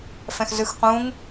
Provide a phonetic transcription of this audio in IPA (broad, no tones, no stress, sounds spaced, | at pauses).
f ɛ̃ x z ɯ x q ũ ŋ